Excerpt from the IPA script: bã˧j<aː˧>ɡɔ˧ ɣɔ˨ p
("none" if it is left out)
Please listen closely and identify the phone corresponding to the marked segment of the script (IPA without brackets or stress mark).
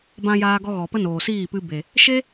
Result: aː˧